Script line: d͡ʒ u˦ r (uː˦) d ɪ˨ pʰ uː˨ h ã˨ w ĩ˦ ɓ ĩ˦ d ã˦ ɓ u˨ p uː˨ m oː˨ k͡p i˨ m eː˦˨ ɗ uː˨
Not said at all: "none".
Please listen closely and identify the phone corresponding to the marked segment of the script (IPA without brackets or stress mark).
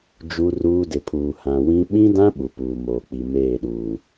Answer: uː˦